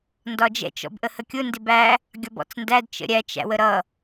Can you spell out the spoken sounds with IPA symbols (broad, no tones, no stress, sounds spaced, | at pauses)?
n d ɒ d͡ʒ ɛ̰ t͡ʃ ɔ̰ b ʔ ə h ə kʲ ʊ n d ɪ b æ | ɡʲ ɒ b ɔ̰ t͡s n d æ d t͡ʃ ə̰ ɾʲ æ t͡ʃ æ̰ w ə ɾ ʌ